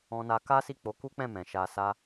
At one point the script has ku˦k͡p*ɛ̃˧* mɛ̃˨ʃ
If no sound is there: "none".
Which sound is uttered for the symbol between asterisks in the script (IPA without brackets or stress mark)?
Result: ɛ̃˦˨